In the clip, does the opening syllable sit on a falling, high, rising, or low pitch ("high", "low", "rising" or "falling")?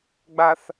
low